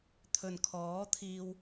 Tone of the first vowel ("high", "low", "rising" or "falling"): low